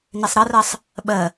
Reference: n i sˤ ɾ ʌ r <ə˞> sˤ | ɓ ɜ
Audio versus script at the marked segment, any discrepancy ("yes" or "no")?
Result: yes